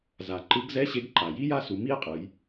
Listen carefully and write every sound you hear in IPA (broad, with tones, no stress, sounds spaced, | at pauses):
z a˩ ǃ ɯ˨˥ ɡ z ɛ˧˥˧ ɕ e˨˥ ɡ ǃ a˩ j i˦˥ j a˥˩ s u˩˧ m i˦˥ e̯ qʼ ɯ˩˧ j